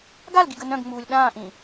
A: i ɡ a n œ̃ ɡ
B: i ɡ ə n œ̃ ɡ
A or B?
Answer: B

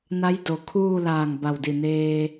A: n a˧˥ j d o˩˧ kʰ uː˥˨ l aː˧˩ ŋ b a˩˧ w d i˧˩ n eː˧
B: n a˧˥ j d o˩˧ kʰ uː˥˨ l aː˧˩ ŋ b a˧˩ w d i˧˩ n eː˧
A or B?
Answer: B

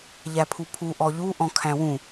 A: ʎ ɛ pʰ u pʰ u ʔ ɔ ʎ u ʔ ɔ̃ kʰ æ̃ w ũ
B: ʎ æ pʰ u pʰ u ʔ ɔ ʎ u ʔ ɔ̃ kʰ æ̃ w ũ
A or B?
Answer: B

